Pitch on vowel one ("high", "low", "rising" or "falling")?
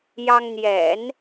high